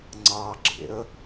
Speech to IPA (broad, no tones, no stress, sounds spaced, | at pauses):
ŋ͡ǀ ɑ ɡ͡ǁ ḛ ə̯